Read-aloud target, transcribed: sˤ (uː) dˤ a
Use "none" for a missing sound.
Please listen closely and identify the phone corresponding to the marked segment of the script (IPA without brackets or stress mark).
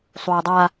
uː